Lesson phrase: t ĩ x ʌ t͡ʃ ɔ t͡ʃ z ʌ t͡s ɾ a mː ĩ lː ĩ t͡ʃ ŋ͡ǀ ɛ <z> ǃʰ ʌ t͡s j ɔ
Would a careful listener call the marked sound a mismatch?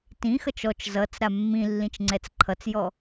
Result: yes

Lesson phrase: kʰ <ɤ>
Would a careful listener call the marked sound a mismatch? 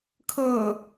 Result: no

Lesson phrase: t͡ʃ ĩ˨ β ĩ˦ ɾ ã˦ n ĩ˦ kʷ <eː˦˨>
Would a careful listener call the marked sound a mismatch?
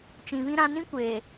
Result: yes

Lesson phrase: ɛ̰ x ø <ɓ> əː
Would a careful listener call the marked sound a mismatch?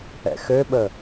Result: no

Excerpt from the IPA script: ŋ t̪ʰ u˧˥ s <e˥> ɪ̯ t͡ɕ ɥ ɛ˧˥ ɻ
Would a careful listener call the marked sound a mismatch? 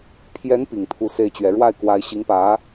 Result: no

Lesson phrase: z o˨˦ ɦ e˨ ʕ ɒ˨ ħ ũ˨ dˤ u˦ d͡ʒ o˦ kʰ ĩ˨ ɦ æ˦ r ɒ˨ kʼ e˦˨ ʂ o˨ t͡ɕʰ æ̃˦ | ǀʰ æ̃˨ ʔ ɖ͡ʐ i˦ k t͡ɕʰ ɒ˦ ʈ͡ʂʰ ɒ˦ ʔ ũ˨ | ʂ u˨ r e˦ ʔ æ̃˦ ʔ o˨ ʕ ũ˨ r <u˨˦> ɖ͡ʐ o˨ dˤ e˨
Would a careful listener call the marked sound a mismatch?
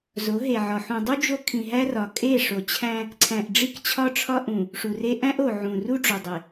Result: yes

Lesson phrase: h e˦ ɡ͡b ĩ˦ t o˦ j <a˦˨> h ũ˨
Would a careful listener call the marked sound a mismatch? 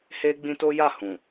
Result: no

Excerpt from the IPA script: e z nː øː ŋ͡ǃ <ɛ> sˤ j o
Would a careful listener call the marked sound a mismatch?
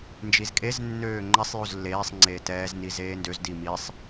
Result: no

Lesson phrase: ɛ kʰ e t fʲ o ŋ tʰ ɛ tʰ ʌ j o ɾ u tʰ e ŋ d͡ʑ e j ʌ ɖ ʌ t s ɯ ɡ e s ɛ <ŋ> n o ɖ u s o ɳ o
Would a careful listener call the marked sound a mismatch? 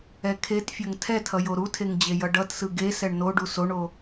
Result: yes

